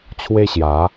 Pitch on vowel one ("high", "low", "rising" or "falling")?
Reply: high